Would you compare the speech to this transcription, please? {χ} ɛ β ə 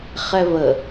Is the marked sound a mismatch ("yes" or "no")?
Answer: no